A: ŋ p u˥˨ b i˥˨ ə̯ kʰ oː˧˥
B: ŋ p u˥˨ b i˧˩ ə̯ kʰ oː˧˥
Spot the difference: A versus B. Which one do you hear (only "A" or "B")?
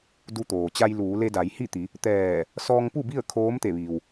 A